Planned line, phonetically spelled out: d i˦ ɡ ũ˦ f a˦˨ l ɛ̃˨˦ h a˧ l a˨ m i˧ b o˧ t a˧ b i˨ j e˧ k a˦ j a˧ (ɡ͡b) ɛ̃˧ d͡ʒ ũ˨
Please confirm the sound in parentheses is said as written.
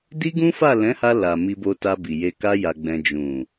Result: yes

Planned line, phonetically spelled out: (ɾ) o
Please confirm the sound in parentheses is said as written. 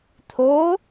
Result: no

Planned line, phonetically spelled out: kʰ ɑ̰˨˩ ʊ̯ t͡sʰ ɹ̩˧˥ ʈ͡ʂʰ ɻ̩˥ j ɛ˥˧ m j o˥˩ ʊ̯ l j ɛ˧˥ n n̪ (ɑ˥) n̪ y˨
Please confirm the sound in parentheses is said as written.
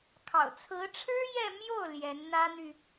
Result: no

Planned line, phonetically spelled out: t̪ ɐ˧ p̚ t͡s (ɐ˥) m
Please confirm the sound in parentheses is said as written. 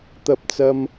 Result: no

